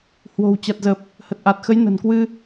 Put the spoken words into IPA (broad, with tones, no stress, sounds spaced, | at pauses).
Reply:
h w o̤˨˩ w t͡ɕ a˨˩ t̚ z ə˨˩ p̚ | h ə˨˩ t̚ ʔ a˨˩ t̚ x ə˨˦ j n ə̤˨˩ n k w ɨ˧